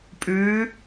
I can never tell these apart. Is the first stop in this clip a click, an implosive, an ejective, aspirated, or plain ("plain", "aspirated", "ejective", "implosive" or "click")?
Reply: ejective